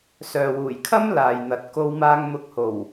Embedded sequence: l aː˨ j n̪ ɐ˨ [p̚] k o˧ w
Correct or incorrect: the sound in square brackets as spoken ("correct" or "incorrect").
incorrect